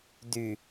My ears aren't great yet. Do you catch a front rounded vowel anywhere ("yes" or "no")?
yes